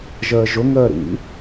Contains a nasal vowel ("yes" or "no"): no